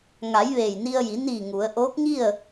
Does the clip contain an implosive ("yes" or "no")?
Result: no